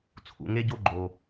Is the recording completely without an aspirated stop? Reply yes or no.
no